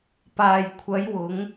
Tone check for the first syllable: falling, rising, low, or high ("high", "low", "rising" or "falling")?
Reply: low